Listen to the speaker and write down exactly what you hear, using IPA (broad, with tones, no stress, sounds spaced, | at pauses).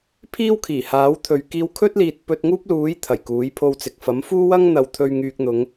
pʰ iː˥ w kʰ iː˨˩ h aː˨˥ w t̪ʰ ɵ˨˧ ɥ k iː˧ w kʰ ɵ˥ t̚ l iː˨ t̚ p ɵ˧ t̚ ŋ uː˥ p̚ l uː˨˥ j t̪ʰ ɐ˨˩ j k uː˨˥ j pʰ o˧ w t͡s ɪ˨ k̚ f ɐ˨˥ m f uː˥ w ɐ˥ ŋ n̪ ɐ˨˧ w t̪ʰ ɵ˧ ɥ ŋ yː˨ k̚ n̪ ʊ˨˧ ŋ